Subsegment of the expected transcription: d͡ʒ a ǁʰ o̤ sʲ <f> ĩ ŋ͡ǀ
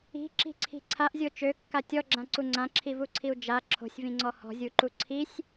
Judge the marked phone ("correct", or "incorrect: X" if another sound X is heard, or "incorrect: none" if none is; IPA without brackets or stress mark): incorrect: v